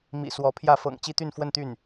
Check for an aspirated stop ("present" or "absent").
present